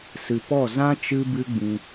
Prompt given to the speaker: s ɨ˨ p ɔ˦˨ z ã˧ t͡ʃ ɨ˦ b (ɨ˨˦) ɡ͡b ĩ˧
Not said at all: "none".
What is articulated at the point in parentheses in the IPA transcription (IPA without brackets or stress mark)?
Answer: ɨ˦